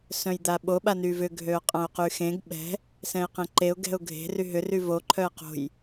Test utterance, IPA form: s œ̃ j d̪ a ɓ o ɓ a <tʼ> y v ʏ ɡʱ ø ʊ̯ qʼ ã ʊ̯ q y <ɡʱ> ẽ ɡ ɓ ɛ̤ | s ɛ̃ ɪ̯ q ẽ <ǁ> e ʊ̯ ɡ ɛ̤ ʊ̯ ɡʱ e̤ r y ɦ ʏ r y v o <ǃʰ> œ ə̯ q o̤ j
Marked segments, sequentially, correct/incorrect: incorrect: n, incorrect: x, incorrect: ǃ, correct

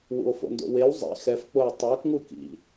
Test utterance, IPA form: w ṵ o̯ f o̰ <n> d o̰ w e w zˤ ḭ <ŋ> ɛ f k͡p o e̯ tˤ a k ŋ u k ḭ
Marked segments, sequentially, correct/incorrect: correct, incorrect: x

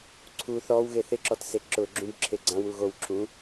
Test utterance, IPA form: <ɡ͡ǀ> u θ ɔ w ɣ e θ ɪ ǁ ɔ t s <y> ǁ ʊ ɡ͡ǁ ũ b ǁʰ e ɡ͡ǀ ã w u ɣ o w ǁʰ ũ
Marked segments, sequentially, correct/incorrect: incorrect: ǀʰ, incorrect: e

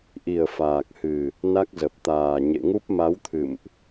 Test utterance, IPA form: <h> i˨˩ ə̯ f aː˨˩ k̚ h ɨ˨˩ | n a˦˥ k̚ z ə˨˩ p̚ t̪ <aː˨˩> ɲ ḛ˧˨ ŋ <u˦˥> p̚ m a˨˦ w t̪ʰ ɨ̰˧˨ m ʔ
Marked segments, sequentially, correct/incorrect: incorrect: ʔ, correct, correct

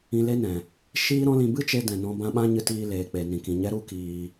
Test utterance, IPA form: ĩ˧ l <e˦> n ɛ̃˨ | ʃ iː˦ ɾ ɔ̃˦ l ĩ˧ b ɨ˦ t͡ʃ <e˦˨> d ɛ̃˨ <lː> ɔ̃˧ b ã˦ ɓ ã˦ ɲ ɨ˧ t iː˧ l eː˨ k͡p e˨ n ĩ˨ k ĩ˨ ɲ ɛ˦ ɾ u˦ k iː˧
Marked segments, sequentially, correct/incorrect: correct, incorrect: e˧, incorrect: n

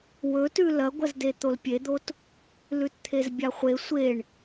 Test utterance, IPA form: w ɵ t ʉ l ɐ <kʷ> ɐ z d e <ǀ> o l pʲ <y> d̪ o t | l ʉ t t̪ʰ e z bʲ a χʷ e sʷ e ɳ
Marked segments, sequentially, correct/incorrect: incorrect: ɡʷ, incorrect: t̪, incorrect: e

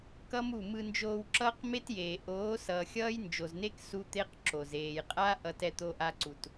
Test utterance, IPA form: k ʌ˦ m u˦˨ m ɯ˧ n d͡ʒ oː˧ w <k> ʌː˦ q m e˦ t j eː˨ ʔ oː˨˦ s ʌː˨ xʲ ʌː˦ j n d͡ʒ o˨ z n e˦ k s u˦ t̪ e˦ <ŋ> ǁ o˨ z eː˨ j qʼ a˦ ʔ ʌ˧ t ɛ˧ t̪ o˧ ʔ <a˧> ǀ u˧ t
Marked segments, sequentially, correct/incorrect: incorrect: ǁ, incorrect: q, incorrect: a˦

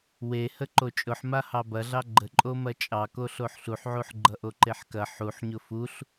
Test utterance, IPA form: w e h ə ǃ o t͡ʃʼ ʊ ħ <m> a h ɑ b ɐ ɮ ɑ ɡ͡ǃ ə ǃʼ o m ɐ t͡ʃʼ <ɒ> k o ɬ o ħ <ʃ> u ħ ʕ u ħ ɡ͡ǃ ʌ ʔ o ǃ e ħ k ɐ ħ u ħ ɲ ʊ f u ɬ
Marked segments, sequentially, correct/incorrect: correct, incorrect: ɑ, incorrect: ɬ

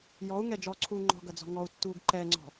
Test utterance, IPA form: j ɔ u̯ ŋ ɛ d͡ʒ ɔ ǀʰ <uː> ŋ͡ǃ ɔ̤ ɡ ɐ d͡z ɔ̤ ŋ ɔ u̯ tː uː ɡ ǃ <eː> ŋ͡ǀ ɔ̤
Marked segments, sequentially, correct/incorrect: correct, incorrect: ɛː

